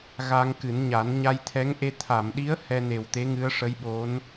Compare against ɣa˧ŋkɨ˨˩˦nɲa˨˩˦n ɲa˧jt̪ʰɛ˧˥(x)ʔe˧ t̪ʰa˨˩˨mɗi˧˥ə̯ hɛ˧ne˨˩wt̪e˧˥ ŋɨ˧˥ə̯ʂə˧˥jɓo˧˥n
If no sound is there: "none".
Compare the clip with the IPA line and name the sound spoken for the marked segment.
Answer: ŋ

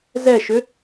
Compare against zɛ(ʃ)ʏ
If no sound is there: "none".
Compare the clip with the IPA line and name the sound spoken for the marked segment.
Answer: ʃ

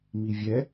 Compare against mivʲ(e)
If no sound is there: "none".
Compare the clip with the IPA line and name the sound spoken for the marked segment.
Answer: ɛ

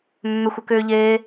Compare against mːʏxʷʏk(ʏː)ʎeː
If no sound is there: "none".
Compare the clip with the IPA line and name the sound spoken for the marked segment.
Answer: ʏː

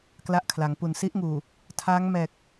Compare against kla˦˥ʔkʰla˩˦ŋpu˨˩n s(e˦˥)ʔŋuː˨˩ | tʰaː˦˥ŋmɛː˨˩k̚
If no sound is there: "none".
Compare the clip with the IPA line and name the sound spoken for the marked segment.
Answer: i˦˥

